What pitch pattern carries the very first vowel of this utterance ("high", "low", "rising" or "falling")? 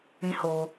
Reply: high